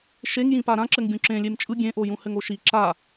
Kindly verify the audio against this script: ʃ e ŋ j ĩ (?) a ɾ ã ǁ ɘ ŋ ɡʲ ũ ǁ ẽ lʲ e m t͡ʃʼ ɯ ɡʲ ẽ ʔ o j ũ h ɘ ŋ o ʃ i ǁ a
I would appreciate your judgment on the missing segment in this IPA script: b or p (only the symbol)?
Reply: p